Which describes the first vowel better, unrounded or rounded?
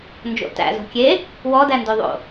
rounded